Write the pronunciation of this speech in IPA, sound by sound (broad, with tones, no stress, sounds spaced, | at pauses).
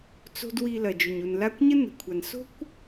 t͡s o̤˦ d w i˧ l ɐ˨ d͡ʒ ɵ˨ ɲ u˨ n l a˦ kʷ ɲ ə˦ n ə̤˨ kʷʰ a˨ n s o̤˦ kʷ